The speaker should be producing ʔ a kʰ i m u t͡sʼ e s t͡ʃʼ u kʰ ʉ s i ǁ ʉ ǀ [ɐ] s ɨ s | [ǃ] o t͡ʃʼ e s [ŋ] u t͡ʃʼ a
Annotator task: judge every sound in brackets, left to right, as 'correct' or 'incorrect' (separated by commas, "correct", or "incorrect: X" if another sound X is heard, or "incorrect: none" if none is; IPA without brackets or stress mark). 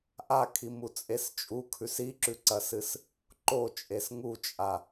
correct, correct, correct